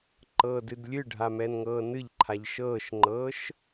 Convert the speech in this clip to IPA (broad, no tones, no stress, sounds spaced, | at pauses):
ǃ ɤː d ɨ d lʲ ɨ ɖʱ a m ɛ n ŋ ɤː n ɨ ʎ ǃʰ a ʎ ʃ ɤː ʃ ŋ͡ǃ ɤː ʃ